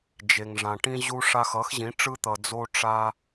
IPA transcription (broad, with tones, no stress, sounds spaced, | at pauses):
d͡ʒ e˨ ŋ ʐ ã˨ ʈ ĩ˧ ʑ u˧ ʂ a˧ x ʌ˨˦ x ʑ ĩ˨˦ ʈ͡ʂ ɯ˧ t̪ ʌ˨ d͡z o˧ ʈ͡ʂ a˧